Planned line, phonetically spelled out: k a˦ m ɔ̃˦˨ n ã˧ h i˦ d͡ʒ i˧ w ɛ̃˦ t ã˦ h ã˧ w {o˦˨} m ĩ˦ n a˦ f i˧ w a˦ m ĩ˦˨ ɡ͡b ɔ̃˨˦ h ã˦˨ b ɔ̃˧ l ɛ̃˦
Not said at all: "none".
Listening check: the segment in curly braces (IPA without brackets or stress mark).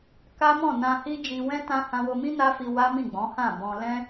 o˧